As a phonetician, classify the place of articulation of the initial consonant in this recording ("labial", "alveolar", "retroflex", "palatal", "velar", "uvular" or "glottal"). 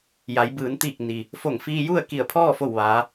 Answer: palatal